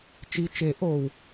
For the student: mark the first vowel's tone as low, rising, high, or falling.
low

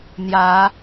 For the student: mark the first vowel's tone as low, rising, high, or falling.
rising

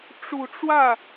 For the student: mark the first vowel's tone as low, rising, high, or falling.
low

